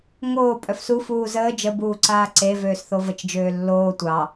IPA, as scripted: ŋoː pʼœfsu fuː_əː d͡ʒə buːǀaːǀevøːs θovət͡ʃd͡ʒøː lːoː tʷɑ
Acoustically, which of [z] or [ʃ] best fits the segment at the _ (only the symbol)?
z